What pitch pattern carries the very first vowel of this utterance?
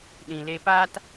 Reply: low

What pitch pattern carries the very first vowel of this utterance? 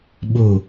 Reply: falling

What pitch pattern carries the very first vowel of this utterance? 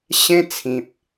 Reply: high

